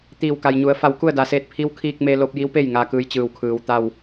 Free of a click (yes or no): yes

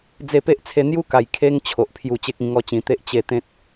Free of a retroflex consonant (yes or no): yes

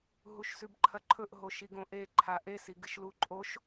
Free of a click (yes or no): no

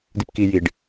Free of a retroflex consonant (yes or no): no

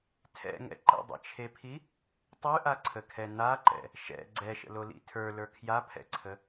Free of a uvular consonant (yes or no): yes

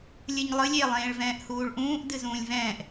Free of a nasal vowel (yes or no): no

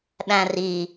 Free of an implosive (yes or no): no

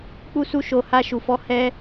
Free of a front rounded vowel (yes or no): yes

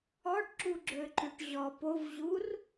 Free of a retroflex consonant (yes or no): no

